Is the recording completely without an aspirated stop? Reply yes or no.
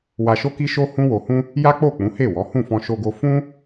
yes